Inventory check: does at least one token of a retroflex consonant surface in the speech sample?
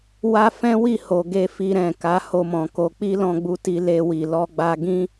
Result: no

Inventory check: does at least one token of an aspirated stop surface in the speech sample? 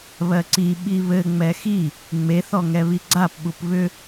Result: no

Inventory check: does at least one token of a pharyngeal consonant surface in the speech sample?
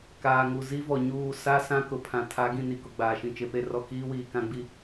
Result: no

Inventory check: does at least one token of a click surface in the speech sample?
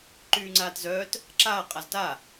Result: yes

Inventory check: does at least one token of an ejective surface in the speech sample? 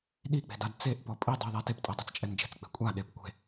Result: yes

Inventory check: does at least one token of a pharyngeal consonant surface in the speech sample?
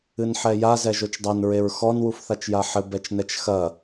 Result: yes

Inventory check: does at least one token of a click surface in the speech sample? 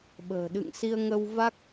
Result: no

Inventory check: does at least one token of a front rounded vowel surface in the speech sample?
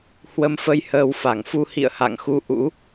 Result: no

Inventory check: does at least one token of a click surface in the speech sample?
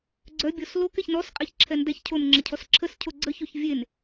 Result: yes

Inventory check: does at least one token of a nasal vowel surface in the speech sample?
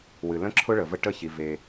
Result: yes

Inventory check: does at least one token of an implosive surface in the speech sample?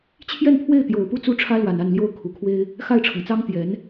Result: no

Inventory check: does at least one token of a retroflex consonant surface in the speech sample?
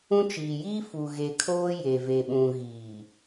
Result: no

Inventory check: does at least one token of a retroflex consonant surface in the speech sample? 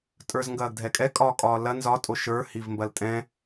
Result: no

